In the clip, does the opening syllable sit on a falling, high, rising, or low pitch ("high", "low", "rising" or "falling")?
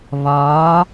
rising